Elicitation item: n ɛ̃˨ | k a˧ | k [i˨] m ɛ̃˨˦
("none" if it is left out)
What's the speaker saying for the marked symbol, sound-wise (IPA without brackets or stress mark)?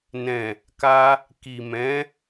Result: i˨